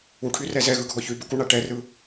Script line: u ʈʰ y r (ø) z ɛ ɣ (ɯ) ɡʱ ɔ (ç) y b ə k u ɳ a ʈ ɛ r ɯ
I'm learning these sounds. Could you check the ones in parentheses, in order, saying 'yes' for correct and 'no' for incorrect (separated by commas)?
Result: no, yes, yes